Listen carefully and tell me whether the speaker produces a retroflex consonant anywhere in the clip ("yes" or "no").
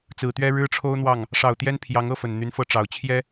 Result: yes